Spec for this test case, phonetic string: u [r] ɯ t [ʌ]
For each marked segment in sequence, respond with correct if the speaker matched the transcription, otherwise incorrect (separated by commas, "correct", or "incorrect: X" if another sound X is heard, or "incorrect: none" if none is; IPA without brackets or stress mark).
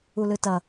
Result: incorrect: l, correct